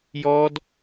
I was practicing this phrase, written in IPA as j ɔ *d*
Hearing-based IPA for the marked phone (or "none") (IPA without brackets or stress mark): d